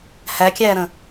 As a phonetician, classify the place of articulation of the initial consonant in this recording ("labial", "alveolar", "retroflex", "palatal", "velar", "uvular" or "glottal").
glottal